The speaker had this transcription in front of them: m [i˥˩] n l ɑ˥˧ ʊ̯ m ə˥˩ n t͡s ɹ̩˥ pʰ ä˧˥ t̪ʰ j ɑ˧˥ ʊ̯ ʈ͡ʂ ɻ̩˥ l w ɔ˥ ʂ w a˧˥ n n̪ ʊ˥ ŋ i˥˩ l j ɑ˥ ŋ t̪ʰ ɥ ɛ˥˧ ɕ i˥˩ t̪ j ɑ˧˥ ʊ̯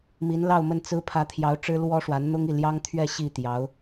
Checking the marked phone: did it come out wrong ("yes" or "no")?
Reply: yes